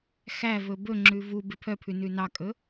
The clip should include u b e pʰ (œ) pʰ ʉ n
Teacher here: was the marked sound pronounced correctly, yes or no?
yes